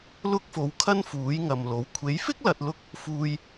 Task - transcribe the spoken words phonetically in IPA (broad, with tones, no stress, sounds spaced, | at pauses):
l ʊ˥ k̚ f o˨˥ w kʰ ɐ˥ n f uː˨˥ j ŋ ɐ˨ m l o˨˥ w kʷʰ e˨˥ j f ɪ˥ k̚ l ɐ˨ t̚ l ʊ˥ k̚ | f uː˧ j